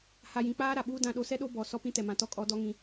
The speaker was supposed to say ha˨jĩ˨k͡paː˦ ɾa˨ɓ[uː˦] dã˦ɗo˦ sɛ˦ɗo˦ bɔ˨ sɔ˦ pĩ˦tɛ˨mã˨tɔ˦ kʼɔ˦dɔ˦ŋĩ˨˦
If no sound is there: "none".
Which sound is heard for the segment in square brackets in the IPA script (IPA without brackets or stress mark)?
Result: uː˦